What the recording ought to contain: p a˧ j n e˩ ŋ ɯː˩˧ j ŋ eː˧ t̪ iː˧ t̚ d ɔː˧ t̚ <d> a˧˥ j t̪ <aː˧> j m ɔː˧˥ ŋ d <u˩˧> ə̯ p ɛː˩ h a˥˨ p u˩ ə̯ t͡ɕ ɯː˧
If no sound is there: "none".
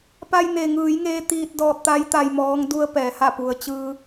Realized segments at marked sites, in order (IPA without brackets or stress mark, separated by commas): t̪, a˧, u˧